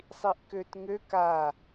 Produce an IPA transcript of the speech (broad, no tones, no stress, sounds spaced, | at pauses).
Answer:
sˤ i ʔ k ø t ŋ ø k a